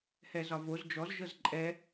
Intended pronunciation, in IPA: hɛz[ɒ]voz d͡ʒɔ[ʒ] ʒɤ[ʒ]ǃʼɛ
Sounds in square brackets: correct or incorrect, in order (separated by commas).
correct, incorrect, incorrect